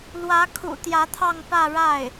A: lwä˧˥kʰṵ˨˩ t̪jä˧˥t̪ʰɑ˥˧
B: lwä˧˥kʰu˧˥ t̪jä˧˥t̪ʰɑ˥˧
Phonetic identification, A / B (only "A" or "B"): A